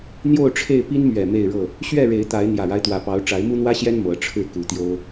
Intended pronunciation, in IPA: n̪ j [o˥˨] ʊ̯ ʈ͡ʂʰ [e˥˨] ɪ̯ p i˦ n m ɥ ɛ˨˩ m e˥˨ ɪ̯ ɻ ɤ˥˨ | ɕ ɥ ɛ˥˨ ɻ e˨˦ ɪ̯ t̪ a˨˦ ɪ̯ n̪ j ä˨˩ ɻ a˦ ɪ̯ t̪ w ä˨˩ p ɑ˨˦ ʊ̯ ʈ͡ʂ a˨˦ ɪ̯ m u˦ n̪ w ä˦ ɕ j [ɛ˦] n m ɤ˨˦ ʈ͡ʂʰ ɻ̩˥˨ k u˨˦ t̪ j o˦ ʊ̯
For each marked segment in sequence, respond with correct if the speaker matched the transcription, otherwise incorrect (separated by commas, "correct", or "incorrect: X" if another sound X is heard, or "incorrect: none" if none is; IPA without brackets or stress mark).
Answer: correct, correct, correct